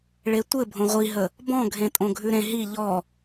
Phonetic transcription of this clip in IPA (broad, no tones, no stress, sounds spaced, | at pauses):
ɭ e tʷ ɘ bʱ õ ʁʷ i ɦ ə | b ɔ̃ ɡʱ ẽ tʼ õ ɡʱ ʉ ɾ ẽ ɦ i ʎ ɔ